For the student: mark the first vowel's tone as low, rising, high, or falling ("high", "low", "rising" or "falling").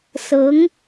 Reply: rising